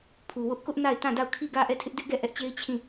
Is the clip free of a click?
yes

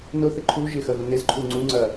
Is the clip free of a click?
no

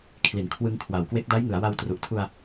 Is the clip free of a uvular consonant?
yes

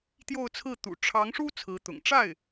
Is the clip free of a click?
yes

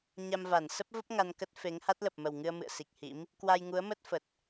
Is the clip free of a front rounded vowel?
yes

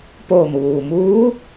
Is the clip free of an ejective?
yes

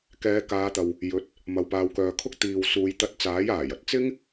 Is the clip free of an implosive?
yes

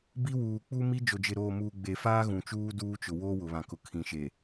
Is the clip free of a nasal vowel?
no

